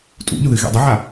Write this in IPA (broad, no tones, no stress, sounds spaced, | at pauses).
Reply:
tʼ ṵ ʎ ʊ ð ɨ ɣ ḛ dˤ ə ʕ a